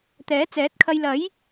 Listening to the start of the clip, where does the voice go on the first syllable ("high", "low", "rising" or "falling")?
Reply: rising